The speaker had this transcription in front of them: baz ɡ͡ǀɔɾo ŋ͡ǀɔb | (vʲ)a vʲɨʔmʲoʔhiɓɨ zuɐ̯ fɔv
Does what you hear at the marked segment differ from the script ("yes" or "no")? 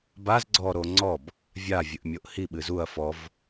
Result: no